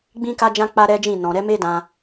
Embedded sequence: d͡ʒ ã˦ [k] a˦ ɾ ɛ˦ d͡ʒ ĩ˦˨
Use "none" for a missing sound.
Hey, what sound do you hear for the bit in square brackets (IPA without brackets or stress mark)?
k͡p